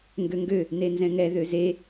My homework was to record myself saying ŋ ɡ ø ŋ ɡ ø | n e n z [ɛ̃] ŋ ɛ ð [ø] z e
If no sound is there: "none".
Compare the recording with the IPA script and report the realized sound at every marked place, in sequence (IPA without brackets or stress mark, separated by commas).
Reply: ɛ̃, ø